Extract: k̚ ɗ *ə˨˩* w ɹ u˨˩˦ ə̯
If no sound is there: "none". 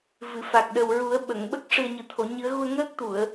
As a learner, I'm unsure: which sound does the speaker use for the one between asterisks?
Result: ə˨˩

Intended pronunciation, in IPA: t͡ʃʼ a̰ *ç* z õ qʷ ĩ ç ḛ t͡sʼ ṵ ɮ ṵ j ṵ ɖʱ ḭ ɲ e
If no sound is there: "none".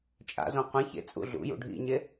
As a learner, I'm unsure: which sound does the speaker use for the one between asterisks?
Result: none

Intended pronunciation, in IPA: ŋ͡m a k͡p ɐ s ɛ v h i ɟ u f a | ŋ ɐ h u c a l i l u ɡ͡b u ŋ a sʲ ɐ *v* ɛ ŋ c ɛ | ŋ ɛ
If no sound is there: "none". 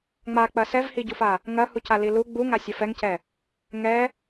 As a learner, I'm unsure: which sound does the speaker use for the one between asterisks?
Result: f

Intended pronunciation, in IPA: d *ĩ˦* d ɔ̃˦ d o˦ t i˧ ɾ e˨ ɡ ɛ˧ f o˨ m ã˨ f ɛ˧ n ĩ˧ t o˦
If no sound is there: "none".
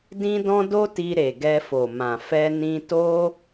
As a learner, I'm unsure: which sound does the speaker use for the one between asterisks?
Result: ĩ˦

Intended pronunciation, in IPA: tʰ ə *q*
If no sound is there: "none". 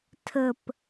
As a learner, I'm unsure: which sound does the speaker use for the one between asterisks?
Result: p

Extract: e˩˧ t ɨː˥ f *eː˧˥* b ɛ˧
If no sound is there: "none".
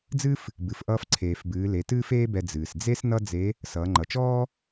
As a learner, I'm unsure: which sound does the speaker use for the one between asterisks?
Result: eː˥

